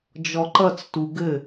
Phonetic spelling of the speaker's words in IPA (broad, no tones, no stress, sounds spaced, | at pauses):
d͡ʒ ɔ ǃ ʌ t͡s t u ɡ ɘ